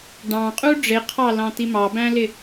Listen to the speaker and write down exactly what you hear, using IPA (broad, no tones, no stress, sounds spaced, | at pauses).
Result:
ɖ ɑ̃ qʼ u ɖ͡ʐ ɪ qʰ ɑ l ɑ̃ t̪ i m ɑ b æ̃ l ɪ